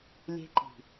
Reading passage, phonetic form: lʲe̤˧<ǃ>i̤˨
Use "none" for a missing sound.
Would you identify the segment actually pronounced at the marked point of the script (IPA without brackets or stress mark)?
ǃ